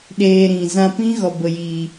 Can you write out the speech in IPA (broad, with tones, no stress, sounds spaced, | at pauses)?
ɗ eː˧ ɾ ĩ˨ z ã˧ p ĩ˦ ɣ ɔ˨ b ə˨ j iː˨